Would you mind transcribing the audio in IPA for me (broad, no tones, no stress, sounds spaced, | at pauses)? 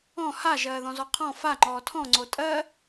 ɔ̃ h a ʒ ɜː ð ɔ̃ z ɔ qʰ ɔ̃ f a ŋ͡ǃ ɔː tʰ ɔ̃ ŋ͡ǀ o tʼ ɜ